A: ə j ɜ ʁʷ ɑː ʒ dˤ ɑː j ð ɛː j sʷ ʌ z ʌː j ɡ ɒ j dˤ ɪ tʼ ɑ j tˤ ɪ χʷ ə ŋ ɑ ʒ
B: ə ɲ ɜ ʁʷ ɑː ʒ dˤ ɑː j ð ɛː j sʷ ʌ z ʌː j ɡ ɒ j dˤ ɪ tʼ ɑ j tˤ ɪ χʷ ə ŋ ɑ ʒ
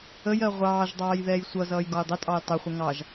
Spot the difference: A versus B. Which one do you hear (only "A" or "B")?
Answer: A